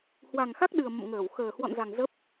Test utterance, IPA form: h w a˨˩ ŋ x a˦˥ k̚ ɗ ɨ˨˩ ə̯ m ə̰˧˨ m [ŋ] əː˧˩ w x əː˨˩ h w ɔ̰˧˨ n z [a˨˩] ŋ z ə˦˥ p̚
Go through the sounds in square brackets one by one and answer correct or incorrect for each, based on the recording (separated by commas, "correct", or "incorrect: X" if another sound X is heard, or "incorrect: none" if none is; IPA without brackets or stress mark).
correct, correct